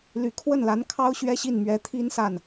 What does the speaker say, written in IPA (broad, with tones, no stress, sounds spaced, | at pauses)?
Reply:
l y˨˩ kʰ w ə˥˩ n l a˧˥ n kʰ ɑ˥ ʊ̯ ɕ ɥ ɛ˥ ɕ i˥˩ n m ɥ ɛ˧˥ t̪ʰ i˥ n s a˥˩ n